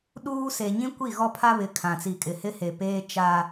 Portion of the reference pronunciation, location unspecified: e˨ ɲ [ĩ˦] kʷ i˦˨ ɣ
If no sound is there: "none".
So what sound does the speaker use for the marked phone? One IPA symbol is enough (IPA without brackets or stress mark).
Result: ĩ˦